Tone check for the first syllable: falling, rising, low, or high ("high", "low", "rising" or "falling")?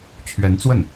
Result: rising